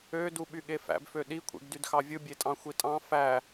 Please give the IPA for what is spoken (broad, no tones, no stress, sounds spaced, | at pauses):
ø d u ɓ y ɠ e f æ̰ b f ø ɗ i kʷʰ ḛ ɡ d y d x ɑ vʲ ɯ bʲ e tʼ ɑ̃ xʷ i tʼ ɑ̃ f æ